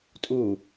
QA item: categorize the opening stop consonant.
ejective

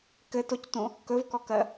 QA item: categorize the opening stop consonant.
plain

